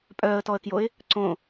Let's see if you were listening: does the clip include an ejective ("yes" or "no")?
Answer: yes